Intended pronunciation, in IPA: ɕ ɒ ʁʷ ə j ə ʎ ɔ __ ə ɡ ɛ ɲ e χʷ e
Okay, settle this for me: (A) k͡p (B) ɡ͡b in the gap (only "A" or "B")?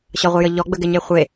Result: B